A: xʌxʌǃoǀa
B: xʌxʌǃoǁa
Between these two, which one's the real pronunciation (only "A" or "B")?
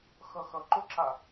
B